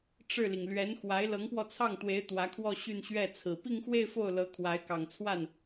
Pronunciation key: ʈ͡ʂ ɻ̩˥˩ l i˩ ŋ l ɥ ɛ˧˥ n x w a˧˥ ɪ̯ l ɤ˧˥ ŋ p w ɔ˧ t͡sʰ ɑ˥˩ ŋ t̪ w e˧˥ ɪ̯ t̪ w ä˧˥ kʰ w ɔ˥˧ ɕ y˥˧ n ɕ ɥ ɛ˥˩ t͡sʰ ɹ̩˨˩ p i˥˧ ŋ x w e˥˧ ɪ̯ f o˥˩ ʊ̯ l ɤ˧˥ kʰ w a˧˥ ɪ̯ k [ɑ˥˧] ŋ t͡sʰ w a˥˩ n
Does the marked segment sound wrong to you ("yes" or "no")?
yes